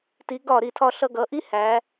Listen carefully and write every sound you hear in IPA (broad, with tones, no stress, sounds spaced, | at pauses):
t i˩˧ ɡ ɒ˧˩ ɾ i˧˩ tʰ ɒ˧ ɬ ʌ˧ ɡ ʌ˩˧ ʔ i˥ h æ˩˧